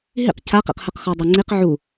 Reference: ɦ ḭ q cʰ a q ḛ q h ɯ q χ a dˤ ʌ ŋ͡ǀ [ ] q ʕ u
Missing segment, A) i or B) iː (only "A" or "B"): A